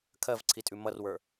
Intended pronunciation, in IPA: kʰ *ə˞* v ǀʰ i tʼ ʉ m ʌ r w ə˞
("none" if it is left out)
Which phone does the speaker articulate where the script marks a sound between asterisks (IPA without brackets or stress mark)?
ɜ